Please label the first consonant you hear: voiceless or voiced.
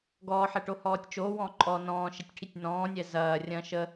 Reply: voiced